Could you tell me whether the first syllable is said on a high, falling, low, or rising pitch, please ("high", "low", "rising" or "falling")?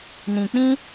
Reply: low